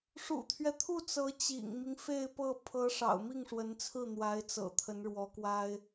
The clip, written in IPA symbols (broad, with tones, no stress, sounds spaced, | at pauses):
ʂ ṵ˨˩ t̪ʰ ɥ ɛ˦ t̪ʰ u˥˩ t͡s ɤ˧˥ t͡ɕ ḭ˨˩ ŋ m i˦ ŋ f e˥˧ ɪ̯ p ɤ˥˩ pʰ ɤ˧˥ ʂ ɑ̰˨˩ ʊ̯ m i˥˩ ŋ ʂ w ə˧˥ n t͡sʰ ɹ̩˥˩ n̪ w a˧˥ ɪ̯ t͡s ɤ̰˨˩ t̪ʰ ə˧˥ n ɻ w ɔ˧˥ k w a˥ ɪ̯